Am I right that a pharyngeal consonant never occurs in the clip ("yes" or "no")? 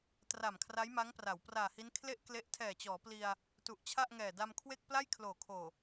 yes